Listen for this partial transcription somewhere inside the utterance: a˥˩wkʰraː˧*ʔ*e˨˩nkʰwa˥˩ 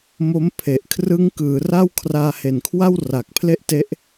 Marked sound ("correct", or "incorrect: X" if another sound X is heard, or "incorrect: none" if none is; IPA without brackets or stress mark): incorrect: h